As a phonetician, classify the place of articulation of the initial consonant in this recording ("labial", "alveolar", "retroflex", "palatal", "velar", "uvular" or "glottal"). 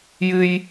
palatal